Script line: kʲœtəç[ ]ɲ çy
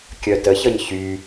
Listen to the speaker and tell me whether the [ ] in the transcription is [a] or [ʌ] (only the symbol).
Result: ʌ